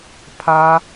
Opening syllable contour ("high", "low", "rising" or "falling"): high